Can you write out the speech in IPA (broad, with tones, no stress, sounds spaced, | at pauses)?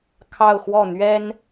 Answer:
kʰ ɑ˥˧ ʊ̯ x w ɔ˥˩ n̪ ɥ ɛ˥ n